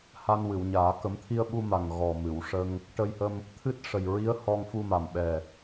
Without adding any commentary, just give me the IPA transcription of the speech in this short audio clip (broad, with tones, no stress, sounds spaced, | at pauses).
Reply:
h a˧ n w ɨ˨˩˨ w ɲ aː˨˩˦ k ə˨˩˦ m t̪ʰ i˧ ə̯ ɓ u˧ m a˨˩ ŋ ɣ ɔ˨˩ m ɨ˨˩˨ w ʂ ə˧ ŋ | ʈ ə˧ j h ə˧ m | t̪ʰ ɨ˦˥ t̚ ʂ ə˨˩ j ɹ i˧˥ ə̯ h ɔ˧ ŋ f u˧ m a˨˩ m ɓ ɛ˨˩